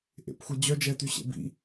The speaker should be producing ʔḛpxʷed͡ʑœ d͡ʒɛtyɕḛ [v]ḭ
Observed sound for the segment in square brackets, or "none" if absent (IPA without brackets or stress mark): b